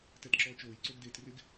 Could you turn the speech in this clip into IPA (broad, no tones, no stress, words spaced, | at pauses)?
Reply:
tɛtǁɔːt͡ʃoːj ǀoɡdeːtrɪɡ